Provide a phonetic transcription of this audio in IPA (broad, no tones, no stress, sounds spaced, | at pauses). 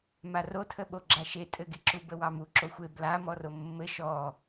m a r o tʰ ə ɓ o ɡ͡ǁ a ʃ e tʼ ɘ ɡ e ǁ u b ə w ɑ m u ǁ o xʷ e b l a m ɔ r o mː ɘ ʃ ɔ